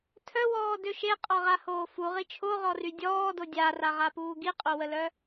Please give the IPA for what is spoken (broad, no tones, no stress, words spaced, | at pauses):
tʰœwɔːdø ʃeqʼɔʁahoː fuʁi t͡ʃʰoʁɔry dʲɔːdo dʲaraʁapuː ɡiqʼowəlœ